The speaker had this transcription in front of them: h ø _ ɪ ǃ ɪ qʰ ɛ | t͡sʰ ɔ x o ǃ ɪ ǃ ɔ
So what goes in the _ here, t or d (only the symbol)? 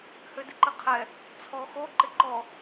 d